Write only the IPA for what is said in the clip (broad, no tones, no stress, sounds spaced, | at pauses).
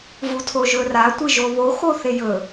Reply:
v u tʰ o ʒ ɵ r a tʷ ɨ ʒ o β o x o θ e j ɵ